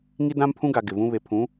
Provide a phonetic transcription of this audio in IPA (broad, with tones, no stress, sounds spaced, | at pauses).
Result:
ŋ i˦ d ã˦ m pʰ ũ˦ ɡ a˨ ɡ ɪ˨ v ũ˦ β e˨ pʰ ũ˨˦